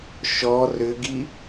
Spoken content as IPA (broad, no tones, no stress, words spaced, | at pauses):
ʃɔ rʏɡi